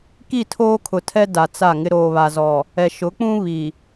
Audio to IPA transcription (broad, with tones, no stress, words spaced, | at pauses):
ki˦˨tʰoː˦kʰʊ˨tʰɛ˦ da˨t͡sa˦˨ŋɪ˦ ɾoː˨βa˨zɔ˨ | ɛ˨ʃʊ˨˦k͡pũ˦ βi˨